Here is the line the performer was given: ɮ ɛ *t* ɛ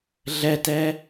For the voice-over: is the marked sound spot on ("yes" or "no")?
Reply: yes